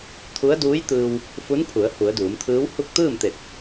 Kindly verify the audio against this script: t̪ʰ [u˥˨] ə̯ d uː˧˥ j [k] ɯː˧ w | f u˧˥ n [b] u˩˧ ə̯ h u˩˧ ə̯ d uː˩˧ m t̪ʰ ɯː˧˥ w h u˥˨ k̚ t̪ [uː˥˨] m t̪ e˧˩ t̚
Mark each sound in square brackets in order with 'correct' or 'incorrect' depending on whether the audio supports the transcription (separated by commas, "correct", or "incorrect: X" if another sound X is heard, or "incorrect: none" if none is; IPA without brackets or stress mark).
incorrect: u˧˥, incorrect: t̪, incorrect: pʰ, incorrect: ɯː˥˨